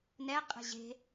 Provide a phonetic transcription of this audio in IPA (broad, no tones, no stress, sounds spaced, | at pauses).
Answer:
n ɛ qʼ e̤ ʑ e̤